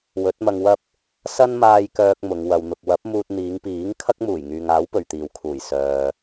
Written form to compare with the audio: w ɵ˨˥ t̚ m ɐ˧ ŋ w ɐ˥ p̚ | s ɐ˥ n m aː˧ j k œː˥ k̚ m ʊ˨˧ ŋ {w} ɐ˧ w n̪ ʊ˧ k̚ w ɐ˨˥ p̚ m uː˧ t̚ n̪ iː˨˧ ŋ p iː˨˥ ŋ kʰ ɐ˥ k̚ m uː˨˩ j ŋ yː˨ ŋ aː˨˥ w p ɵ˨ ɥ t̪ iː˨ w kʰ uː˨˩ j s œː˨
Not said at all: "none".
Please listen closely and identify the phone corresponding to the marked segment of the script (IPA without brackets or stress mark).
w